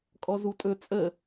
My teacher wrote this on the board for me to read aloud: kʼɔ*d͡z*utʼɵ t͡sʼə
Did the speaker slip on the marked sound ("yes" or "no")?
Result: yes